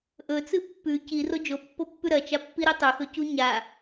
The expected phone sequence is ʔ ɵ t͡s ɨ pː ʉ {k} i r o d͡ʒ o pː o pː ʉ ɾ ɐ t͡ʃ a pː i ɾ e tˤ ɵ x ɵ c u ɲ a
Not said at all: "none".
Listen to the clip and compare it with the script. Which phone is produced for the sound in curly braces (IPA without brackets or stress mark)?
c